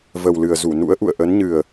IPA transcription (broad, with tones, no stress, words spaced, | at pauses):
və˨˩wlɨ˨˩ə̯zu˧˩ nṵ˧˥ə̯ʔṵ˧˨ə̯ ʔə˨˦nɲɨ˨˩ə̯